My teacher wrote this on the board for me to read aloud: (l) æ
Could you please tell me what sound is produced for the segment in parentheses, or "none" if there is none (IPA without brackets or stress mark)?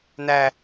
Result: n̪